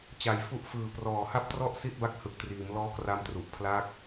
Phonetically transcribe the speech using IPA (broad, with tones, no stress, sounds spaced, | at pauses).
t͡ɕ a˨˩ j f u˦˥ ʔ f ɯː˨˩ p r ɔː˨˩ h a˥˩ p̚ t r ɔ˥˩ ʔ s i˥˩ t̚ b a˥˩ k̚ h ɯ˨˩ k̚ t r iː˩˦ m l ɔː˦˥ k r a˧ m t r u˨˩ ʔ pʰ l aː˦˥ k̚